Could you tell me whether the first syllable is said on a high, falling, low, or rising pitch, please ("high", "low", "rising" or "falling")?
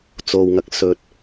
low